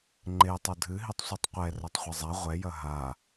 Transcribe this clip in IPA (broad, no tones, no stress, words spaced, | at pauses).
ŋ͡ǃe tˤodʱɨɦitˤ sʷitˤqʷɛ rɐtˤχʷɐzˤa ʁʷɛjɐ ɦa